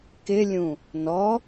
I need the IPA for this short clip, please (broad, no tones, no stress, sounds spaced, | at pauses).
k ɪ lʲ ũ | n ɔ